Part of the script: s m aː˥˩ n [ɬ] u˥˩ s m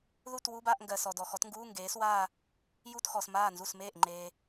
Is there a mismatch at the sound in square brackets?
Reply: yes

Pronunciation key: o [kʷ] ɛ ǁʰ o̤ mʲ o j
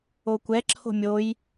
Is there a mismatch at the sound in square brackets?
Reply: no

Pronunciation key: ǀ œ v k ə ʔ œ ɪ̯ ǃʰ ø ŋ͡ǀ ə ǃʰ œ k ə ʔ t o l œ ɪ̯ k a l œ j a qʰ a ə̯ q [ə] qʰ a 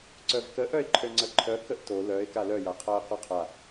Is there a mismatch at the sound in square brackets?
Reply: yes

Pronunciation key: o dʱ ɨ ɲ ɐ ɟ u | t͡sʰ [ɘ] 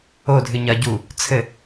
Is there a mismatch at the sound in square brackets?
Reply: no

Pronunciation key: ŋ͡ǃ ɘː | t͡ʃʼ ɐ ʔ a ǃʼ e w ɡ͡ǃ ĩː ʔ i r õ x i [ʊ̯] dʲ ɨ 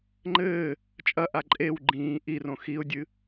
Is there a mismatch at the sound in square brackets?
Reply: no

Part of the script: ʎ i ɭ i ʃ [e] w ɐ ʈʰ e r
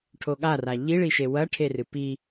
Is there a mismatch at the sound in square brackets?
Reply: no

